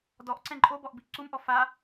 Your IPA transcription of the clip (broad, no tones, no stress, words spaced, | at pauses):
dɔʔ ǀɛ̃ǃʼobɔʔ biʔǀumʔɔ fa